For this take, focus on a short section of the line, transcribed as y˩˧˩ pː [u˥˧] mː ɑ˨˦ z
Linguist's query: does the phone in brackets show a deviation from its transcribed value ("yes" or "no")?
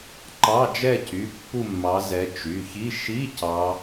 no